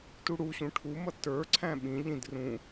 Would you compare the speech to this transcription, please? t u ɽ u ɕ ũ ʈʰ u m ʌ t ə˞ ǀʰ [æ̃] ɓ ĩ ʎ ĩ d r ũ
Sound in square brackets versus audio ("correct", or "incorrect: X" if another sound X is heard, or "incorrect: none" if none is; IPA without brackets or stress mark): correct